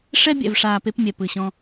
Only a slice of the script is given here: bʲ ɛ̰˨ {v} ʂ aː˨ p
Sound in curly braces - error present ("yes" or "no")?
no